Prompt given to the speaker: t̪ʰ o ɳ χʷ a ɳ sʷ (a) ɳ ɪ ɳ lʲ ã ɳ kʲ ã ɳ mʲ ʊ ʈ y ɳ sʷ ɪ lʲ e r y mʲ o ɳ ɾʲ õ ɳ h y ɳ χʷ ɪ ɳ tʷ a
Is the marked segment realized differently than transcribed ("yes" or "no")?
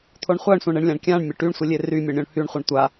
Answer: yes